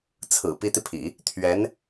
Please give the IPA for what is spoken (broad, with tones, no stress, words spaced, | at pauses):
t͡sʰɹ̩˨˩ pi˧˥t̪i˧pʰḭ˨˩˦ | t̪ʰɥɛ˧˥n